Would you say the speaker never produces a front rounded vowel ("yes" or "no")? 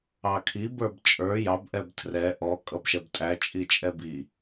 yes